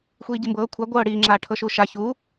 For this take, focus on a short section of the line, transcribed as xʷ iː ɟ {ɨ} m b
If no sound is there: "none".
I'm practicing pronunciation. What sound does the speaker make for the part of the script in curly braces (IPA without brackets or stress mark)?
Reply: i